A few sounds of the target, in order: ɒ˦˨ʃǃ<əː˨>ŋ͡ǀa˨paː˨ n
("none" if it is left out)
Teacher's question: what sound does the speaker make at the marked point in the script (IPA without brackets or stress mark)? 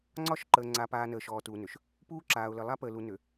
əː˨